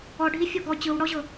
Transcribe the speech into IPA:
ɔɖʱi fʲɔɡɔ t͡ɕɯwɽɔʑɤ

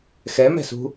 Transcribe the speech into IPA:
xɛmɛ̤sṳ

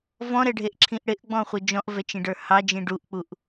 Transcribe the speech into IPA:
vɔ̃ɾɛɖʱeʔǁʰĩʔ ɽɪʔɡ͡bɔ̃χʷɯ d͡ʒɔ̃ʔvɛt͡ʃĩɖə˞ hɑd͡ʒĩ ɖuʔk͡puʔ

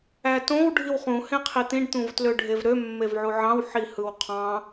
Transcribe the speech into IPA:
ætõw ɖʱiwχũ hẽqʰit̪ĩɖ t̪ũvtløɖʱevɾø mːevʕuʕɑ̃w ħihɯwqʰɑ̃

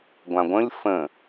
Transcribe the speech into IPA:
ɡʷãɡʷə̃lʲ fə̃

